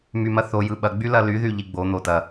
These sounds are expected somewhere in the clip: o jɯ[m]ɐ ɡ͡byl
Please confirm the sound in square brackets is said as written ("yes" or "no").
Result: no